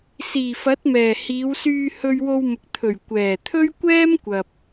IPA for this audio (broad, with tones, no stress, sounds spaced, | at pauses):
s iː˨˩ f ɐ˨˥ t̚ m ɛː˨˩ h iː˨˧ w s yː˧ h ɵ˧ ɥ w o˧ w m ʊ˨ k̚ t̪ʰ ɵ˨˩ ɥ kʷ ɛː˨˩ t̪ʰ ɵ˥ ɥ kʷ ɛː˥ m kʷ ɐ˨ p̚